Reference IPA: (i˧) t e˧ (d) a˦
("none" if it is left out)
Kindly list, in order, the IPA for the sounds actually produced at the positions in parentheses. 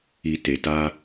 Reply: i˧, t

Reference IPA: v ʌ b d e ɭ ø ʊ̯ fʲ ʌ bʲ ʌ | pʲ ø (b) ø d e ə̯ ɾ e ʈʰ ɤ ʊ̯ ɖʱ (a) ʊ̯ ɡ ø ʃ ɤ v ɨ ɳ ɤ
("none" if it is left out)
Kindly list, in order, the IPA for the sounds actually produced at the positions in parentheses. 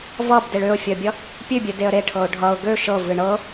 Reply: bʲ, ʌ

